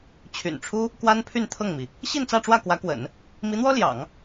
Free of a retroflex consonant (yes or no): no